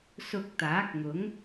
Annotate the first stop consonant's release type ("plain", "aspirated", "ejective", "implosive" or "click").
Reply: plain